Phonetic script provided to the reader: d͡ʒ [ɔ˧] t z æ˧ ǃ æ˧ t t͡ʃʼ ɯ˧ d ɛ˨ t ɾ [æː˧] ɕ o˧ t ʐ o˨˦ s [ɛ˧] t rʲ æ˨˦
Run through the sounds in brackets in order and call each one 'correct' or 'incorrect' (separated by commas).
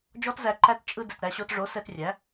incorrect, incorrect, correct